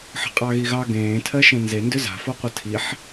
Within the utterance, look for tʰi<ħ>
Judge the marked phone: correct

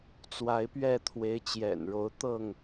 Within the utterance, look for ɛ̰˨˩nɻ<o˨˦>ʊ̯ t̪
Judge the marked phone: correct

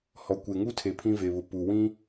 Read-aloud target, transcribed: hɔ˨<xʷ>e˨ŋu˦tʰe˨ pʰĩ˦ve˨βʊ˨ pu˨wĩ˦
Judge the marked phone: incorrect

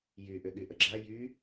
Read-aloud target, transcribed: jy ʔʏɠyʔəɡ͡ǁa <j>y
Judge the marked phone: correct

